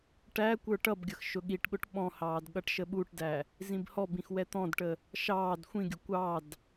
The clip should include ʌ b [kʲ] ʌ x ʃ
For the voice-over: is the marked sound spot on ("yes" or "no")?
no